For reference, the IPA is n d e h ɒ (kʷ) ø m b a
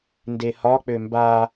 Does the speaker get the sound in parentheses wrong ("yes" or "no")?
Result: yes